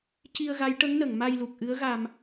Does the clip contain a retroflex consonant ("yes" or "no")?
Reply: yes